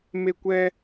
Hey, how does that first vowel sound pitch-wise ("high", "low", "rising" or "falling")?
high